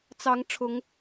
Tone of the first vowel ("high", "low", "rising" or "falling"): rising